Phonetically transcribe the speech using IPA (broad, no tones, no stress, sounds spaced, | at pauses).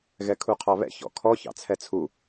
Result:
ɣ ɛ kʰ u qʰ ɑ β ɛ̰ ç ɔ̰ kʰ ɔ ç ɑ̰ t͡sʰ ɛ t͡sʰ u